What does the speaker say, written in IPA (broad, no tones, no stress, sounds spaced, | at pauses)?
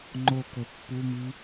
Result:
ŋ͡ǃ o k ɵ pː u m i